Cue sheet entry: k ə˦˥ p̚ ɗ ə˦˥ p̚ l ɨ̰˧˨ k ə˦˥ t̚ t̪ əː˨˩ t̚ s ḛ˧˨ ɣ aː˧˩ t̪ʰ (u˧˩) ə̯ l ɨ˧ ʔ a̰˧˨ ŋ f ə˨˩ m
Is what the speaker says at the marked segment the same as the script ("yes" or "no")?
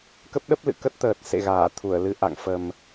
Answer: yes